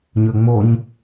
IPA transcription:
ɲ ø ŋ͡m o ɲ

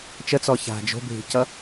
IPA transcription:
t͡ʃ ə t͡s ɔ ç a̤ d͡ʒ o̤ bʱ i̤ c ʌ

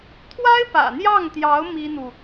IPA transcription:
t̪ʰ w a˥ ɪ̯ p ä̰˨˩ n̪ j ɑ˥˩ ŋ t̪ j ɑ˧˥ ʊ̯ m i˥ n̪ u˨

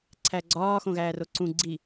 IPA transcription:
ǀʰ æ ɡ͡ǀ ɒː x õ ɣ æː r o ǀ ũ ɡ͡ǀ i

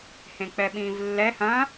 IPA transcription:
h ẽ k͡p ɛ ɓ ĩː v lː ɛ h ɐ̃

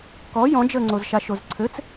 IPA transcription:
k ɔ j ɔ̃ d͡ʒ əː ŋ͡ǀ o z ʃ a ʃ o z ǀʰ ɘ t͡s

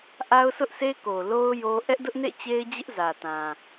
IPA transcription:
ʔ a˦ ʊ̯ s ʊ˦ ʔ sʰ e˦ k o˨ l o˦ ʊ̯ j o˦ ʔ ɛ˦ ʔ d ʊ˦ ʔ n ḛ˦˨ t͡ɕ e˦ ɪ̯ d͡ʑ ɪ˦ ʔ z ä˨ t ã˨

